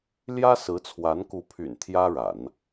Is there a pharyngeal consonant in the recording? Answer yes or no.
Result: no